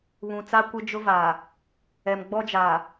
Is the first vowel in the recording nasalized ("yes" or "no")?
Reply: yes